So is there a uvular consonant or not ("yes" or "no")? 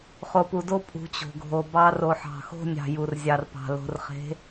yes